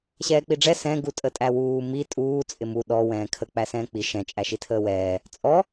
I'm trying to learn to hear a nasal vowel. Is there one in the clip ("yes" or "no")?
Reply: yes